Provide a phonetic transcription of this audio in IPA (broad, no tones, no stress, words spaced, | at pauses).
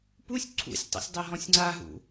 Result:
pusʲ ǀʰṵsʲ tˤo̰sʲdˤɘɦɔ̃sʲŋ͡ǀa ɦṵ